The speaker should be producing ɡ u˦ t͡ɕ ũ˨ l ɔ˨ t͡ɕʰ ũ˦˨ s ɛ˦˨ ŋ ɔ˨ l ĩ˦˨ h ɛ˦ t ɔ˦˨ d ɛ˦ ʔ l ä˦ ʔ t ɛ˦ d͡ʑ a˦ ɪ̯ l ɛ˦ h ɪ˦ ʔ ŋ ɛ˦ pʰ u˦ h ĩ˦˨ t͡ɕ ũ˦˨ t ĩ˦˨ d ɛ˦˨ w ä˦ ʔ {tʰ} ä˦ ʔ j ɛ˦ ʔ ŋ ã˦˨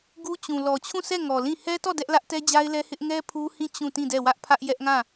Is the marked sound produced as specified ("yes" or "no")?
no